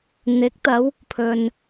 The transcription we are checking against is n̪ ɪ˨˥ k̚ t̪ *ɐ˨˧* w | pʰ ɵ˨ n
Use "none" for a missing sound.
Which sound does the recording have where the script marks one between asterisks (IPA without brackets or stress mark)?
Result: ɐ˨˧